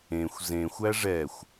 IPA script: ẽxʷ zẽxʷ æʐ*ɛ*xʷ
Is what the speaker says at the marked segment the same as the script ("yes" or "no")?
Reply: yes